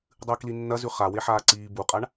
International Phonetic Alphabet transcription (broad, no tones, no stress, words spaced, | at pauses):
dˤɨːklinːɐ zʉχa weħaːǀiː buqʼaɳ